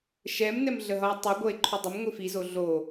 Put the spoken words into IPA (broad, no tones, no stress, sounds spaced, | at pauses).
ʃ ɛ m n ɛ m ɮ ə ɦ ʌ e̯ tˤ i ɡʷ ʌ e̯ ǃʰ u dˤ ə m ŋʷ i f i z o ɮ o